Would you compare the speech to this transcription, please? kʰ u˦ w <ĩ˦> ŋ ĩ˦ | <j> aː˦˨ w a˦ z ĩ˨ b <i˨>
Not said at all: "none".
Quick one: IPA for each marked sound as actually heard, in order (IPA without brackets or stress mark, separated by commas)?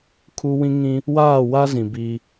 ĩ˦, w, i˦